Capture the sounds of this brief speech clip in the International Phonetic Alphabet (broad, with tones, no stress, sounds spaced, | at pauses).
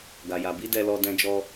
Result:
ɡ a˨ j a˨ b i˨˦ d ɛ˧ l ɔ˧ d ɛ̃˧ d͡ʒ ɔ˧